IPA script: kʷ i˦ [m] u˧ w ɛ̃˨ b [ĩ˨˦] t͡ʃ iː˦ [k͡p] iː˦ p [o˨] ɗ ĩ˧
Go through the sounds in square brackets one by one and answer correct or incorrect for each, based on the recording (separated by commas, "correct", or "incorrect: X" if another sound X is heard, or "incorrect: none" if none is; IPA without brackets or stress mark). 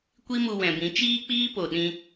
correct, correct, correct, correct